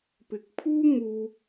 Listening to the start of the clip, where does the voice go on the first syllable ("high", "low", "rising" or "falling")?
rising